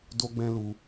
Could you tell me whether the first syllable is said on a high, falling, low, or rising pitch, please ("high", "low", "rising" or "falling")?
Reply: high